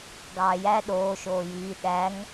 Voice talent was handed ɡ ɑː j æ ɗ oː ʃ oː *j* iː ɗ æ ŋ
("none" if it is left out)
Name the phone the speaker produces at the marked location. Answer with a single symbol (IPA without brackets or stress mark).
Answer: j